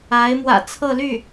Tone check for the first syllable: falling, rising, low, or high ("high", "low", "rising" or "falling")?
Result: rising